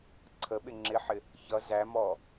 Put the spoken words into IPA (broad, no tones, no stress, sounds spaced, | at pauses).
ǀʰ ə ɓ ɪ ŋ͡ǁ ɪ ħ ɪ | ç ʌ z æ m ɔ